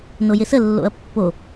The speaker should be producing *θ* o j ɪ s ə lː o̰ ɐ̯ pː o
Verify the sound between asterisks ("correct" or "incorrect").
incorrect